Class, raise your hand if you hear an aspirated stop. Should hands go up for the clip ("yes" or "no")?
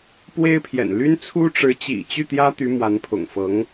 yes